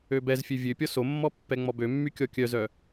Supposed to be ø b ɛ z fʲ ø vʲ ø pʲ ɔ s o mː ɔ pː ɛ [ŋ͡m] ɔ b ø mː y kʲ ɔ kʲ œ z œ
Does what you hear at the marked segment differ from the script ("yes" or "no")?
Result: no